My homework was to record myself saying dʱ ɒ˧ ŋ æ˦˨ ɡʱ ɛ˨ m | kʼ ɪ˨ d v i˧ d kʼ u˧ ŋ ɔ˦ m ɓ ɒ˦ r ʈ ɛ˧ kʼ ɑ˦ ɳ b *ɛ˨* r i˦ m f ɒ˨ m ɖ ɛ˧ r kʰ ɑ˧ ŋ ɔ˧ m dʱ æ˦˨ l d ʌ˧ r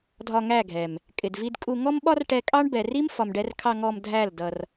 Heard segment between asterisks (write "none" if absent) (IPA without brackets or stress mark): ɛ˨